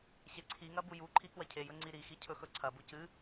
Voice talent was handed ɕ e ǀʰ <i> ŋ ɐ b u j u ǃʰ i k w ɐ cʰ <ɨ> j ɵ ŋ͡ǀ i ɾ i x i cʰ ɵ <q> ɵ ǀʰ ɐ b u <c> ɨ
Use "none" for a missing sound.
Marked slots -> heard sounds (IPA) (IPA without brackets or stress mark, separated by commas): i, e, x, c